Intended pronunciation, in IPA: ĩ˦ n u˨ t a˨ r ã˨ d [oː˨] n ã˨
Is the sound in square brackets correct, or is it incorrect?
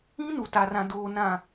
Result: correct